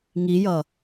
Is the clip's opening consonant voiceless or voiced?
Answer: voiced